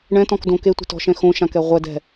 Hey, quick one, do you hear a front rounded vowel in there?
no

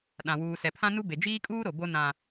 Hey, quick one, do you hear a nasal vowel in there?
yes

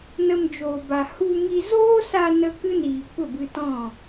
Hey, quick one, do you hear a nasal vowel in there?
yes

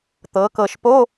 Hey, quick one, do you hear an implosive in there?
no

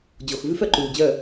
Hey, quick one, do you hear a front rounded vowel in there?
yes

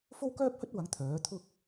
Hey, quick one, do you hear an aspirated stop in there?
yes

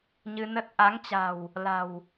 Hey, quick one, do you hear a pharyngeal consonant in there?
no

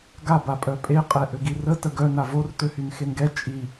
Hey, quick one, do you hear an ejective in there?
yes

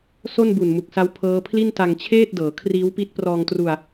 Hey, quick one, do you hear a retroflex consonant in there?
no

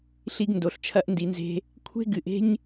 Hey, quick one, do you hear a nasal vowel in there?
no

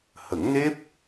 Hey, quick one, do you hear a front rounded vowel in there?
no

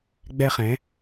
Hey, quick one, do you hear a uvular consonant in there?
yes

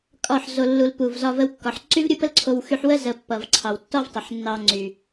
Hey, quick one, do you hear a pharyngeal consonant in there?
yes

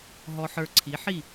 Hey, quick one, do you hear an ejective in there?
no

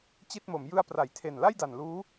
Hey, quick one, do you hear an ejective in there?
no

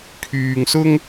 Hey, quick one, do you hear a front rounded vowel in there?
yes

